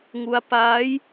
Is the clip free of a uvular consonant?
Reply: yes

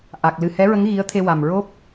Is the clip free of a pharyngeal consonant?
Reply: yes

